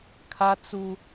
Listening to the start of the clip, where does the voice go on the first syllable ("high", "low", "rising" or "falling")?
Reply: high